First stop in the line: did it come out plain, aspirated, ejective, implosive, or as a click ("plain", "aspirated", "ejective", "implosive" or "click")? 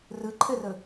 click